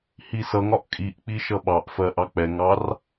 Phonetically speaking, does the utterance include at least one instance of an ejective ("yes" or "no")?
yes